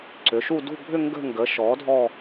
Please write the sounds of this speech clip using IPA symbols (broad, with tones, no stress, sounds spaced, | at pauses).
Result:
ǀ ʏ˩˥ ʃ u˥˧ d ṳ˥˧ bʱ ʏ˥˧ ŋ ɡ ə̤˥˧ ŋ ɡ ə˩˥ ʃ ɔ˩˥ dʱ ɔ˥˧